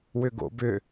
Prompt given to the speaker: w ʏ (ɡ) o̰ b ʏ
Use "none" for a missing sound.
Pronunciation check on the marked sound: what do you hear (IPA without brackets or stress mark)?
ɡ